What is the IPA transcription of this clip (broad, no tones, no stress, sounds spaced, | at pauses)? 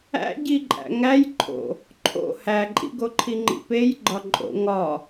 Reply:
æ̰ ɟ i ǃʼ æ̰ ŋ æ j ǃʰ o̰ | ǃʰ o̰ h æ ǃʼ ḭ ɡ o ǃʰ i ŋ͡ǃ ḭ p e j ɡ͡ǃ ɒ ǃʼ o̰ ŋ ɒ